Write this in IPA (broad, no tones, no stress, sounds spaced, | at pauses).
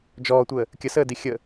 d͡ʒ ɔː tʷ əː | kʲ ə s əː d i xʲ ə